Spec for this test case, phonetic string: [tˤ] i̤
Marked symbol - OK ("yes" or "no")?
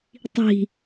yes